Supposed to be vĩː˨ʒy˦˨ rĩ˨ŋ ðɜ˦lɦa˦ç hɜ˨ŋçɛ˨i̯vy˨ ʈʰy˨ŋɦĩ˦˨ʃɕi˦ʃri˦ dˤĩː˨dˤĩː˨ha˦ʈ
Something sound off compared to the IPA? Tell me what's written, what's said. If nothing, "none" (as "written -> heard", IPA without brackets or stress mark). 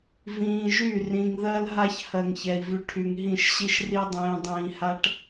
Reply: none